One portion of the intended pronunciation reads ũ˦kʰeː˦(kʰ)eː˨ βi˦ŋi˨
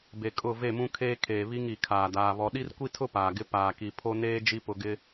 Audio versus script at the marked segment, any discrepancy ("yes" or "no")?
no